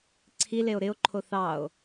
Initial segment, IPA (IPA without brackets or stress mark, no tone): ǀʰ